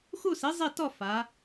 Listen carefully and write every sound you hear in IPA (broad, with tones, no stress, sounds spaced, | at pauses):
x u˥˧ s i˨˥ zˤ i˥˧ t ɔ˥˧ f a˩˧